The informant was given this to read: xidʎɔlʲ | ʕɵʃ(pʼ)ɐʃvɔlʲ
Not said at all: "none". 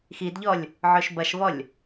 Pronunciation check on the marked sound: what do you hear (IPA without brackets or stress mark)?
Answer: b